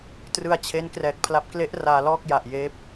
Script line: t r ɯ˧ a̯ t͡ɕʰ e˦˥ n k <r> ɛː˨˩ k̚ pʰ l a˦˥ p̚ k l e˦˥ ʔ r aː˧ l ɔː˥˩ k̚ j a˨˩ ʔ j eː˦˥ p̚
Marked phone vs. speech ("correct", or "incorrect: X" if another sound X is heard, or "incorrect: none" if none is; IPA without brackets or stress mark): correct